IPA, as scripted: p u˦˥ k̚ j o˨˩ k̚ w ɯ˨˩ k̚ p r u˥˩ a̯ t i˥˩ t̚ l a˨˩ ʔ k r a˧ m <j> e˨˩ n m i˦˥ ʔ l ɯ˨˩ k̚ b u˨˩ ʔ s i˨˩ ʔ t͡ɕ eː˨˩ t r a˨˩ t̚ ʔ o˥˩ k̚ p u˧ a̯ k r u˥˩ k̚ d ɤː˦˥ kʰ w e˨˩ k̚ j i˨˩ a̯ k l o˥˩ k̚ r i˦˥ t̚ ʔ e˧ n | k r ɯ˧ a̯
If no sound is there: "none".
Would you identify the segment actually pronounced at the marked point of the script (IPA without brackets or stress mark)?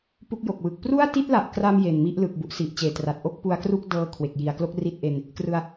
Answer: j